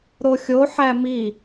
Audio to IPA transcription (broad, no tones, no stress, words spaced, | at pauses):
ɾoxʲo ħæmi